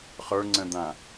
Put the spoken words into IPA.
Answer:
χ ə˞ ŋ͡ǀ ə̃ d̪ ã

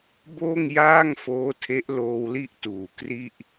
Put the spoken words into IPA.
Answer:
b oː˥˩ ŋ j aː˥˩ ŋ f oː˦˥ tʰ e˦˥ ʔ l oː˧ w l i˥˩ ʔ t uː˨˩ k r i˥˩ ʔ

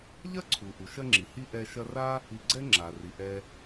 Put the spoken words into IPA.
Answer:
ʎ ɐ˥ ǀʰ u˩ ʔ u˩ ʃ ɐ˦ ŋ͡ǁ i˩ h i˦ ʔ ɛ˦ ʃ ɐ˥ r a˥ | i˨ ɡ͡ǀ ɛ˥ ŋ͡ǁ a˩ r i˩ ʔ ɛ˨

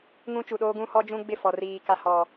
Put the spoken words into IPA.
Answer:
ŋ ũ˦ t͡ʃ u˨ ɗ oː˦ ɡ ũ˦ h ɔ˦ d͡ʒ ũ˦ ɡ͡b ɪ˦˨ f ɔ˨ r iː˨ k a˨ h ɔ˨

